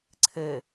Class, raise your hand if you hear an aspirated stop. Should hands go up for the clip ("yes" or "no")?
yes